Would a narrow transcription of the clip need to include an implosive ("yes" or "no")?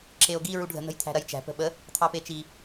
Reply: yes